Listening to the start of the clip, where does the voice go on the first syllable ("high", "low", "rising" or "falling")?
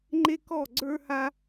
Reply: high